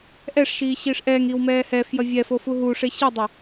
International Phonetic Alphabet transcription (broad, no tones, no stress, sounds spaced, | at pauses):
ʔ ɛ ʂ ʃ iː ɕ iː ʂ ʔ ɛː ŋ iː w m ɛː h ɛ f j ʌ vʲ ɛ f o f u ɦ u ʂ e ɕ i dˤ ʌ